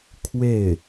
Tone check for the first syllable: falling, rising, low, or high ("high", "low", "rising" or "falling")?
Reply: falling